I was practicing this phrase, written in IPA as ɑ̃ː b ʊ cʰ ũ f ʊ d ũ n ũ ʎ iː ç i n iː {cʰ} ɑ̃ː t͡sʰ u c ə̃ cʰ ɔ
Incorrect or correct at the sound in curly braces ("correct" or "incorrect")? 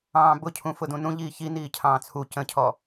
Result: correct